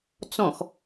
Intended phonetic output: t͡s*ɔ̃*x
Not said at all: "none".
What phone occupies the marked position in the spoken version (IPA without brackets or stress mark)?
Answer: ɔ̃